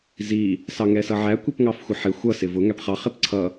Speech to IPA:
z i | s ɑ ŋ ɛ s ʌ ʕ æ kʷ i p ŋ ɑ f xʷ ə ħ ɪ xʷ ʌ s ɪ v ʊ ŋ æ p χ ɑ χ ɪ p ǀʰ ʌ

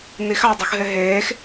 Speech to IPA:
n i x ɑ dˤ u x ɦ e ɦ eː x

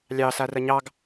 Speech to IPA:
lʲ ɑ s a r ɐ ɲ ɑ ɡ

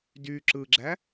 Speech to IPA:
d y ǁ ɯ ɡ͡ǁ æ

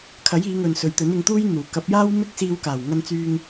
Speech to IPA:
kʰ ɐ˨˥ j iː˨˧ ŋ ɵ˨ n s ɵ˨˧ ɥ t̪ ɵ˨˥ n ɪ˨˧ ŋ t̪ uː˥ j n̪ uː˨˩ k ɐ˨˥ p̚ j aː˥ w m ɪ˥ k̚ s iː˧ w k aː˨˩ w ŋ ɐ˧ n t͡s yː˧ ŋ

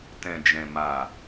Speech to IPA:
t ɛ̃˨ d͡ʒ ɛ̃˨ m a˨

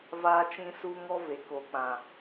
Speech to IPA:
v aː˦ t͡ʃ ĩ˦ s u˦ ŋ ɔ˦ v e˨ k o˨ k͡p ã˨

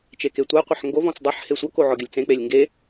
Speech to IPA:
t͡ʃ e k e tʷ a qʷ ə ħ ŋ ɡ o v ɔ̃ t͡s dˤ ʌ ħ h e sʷ ʌ k o ʕ ɔ ɡʲ ə lʲ t͡s ẽ k͡p e lʲ ŋ ɡ e

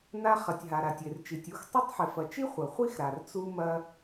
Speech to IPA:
n a˧ χ ɐ˩ tʲ ɦ a˩ ɾ a˩ tʲ e˩ r t͡ʃ i˩ tʲ u˧ x tˤ a˥ tˤ ħ e˩ f ɐ˩ t͡ʃ i˥ χʷ ɐ˩ χʷ i˥ x ɾ a˩ r t͡s u˧ m ɐ˧

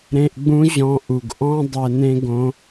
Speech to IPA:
ɾ ẽ˧ ʔ ɡ͡b ũ˧˥ ʑ ɔ̃˧ ʔ u˩ ɡ ʔ ɔ̃˥ dˤ ɛ˧ n ẽ˥ ɡ õ˧˥

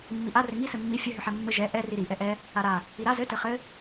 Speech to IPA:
mː i ʔ a r ʏ ŋ i s ɘ mː i fʲ ɘ ɦ ʏ ħ ɛ mː ɘ ʒ ɛ ʔ ɛ r i ɾ i ʔ ɛ ʔ ɛ | a ɾ a | i ɾ a z ɘ t ɘ χ ɘ

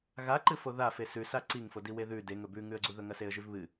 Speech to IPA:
ɣ a ǃ ɨ f o ð a f e s ʉ s a ǀ i ŋ f o d i w e ð ʉ d e ŋ ɵ b ʉ ŋ ʉ ə̯ ɡ͡ǀ u ð ɵ ŋ ɐ s e ə̯ ʒ ʉ v β ɨ

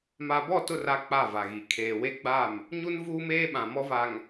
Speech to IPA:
m a˨ b ɔ˦˨ t ʊ˦˨ r a˦ k͡p a˦˨ v a˨ ɣ i˨ kʰ eː˨ w e˦ ɡ͡b a˦˨ m | ɲ u˦ n v uː˦ m eː˦ ɓ ã˨ m ɔ˦ v a˨ ŋ

